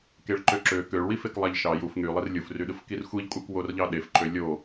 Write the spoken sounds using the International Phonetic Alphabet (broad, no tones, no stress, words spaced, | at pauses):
keɭǃøǁø køɭwifek lˠæʎʃɑ juf ŋylˠir lʲufryɗɯf kirxʷiʎkʷʼæk worʎɑɗef ǃølʲo